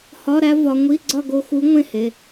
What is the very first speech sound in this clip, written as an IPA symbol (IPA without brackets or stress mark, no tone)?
h